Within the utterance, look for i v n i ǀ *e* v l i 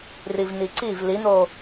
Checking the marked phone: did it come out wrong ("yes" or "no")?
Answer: yes